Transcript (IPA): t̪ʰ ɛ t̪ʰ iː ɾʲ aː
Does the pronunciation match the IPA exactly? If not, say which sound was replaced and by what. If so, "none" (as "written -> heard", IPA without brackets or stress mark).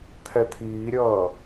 aː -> ʌː